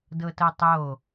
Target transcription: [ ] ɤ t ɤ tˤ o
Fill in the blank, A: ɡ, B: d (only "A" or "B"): B